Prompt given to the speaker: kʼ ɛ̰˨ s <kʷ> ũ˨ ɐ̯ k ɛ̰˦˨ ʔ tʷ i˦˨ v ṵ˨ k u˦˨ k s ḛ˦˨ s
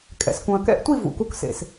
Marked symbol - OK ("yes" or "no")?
no